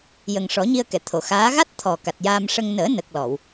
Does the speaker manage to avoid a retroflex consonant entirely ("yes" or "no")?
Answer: no